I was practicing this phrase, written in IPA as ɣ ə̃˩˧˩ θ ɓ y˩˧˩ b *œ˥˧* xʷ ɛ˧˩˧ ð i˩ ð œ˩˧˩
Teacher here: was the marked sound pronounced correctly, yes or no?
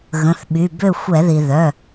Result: no